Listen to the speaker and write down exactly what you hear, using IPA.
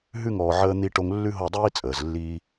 ɦ ʉ˦˨ ŋ ɔː˨ ʕ əː˧ n̪ i˧ ʈ o˧ ŋ lː ʉ˦ ɦ o˦˨ dˤ iː˦ t͡sʼ əː˨ z lː iː˦

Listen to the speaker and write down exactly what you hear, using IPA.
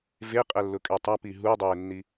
v e qʼ ɛ lː ʊ kʼ ɛ tˤ a p i ɦ u dˤ eː nː i

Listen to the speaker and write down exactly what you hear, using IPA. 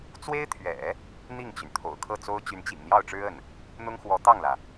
t͡s w e˥ ɪ̯ t̪ʰ ɥ ɛ̰˨˩˦ | n̪ i˥˩ ŋ t͡ɕ y˩ n t̪ʰ o̰˨˩ ʊ̯ kʰ ɤ˥˩ t͡s o˥ ʊ̯ t͡ɕ y˧˥ n t͡ɕ ḭ˨˩ ŋ n̪ j ɑ˥˩ ʊ̯ ʈ͡ʂ ɻ̩˥ ə˥˩ n | n̪ ʊ˥ ŋ x w ɔ˧˥ t̪ ɑ˥˩ ŋ l ä˩

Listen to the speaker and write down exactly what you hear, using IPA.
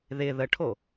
ð ɪ ð ə ʈʰ o

